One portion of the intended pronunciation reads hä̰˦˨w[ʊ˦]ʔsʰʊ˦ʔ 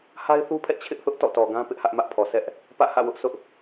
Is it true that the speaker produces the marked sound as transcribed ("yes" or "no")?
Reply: yes